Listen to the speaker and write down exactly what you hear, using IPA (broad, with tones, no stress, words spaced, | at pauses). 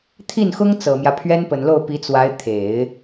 t̪ʰi˥˩nxʊ˥ŋ t͡sɤ˨˩mjä˦ pʰɥɛ˥npə˨˩nlo˥˩ʊ̯ pi˧˥t͡swa˧˥ɪ̯ t̪ʰe˨˩˦ɪ̯